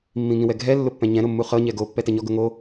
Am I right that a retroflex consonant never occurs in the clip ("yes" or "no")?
yes